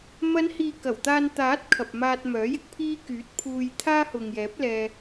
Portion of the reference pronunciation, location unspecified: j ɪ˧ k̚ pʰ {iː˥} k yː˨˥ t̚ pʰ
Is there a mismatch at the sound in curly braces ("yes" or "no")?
no